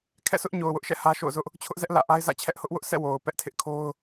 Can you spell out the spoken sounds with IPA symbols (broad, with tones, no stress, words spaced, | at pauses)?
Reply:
kʰɛ̰˦˨sʊ˦ʔɲo˨ʊ̯ wʊ˦ʔʃɛ̰˦˨ hä˦ ʃo̰˦˨ʊ̯zʊ˦ʔ | t͡ɕʰʊ˦ʔzɛ˦ʔ lä̰˦˨ ʔa˦ɪ̯zä̰˦˨ t͡ɕʰɛ˦ʔhʊ˦ʔ wʊ˦ʔsʰɛ̰˦˨ wo˨ʊ̯pɛ˦ʔ tʰɪ˦ʔkʰo˦ʊ̯